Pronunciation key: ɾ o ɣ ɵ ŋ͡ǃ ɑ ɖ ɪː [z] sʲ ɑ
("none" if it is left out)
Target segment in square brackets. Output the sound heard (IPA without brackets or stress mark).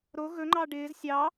z